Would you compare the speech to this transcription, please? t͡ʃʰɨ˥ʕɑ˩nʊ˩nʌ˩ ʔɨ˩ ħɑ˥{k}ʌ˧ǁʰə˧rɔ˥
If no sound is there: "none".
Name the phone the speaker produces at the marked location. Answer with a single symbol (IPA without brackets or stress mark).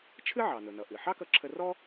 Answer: k